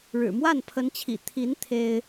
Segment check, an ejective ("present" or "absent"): absent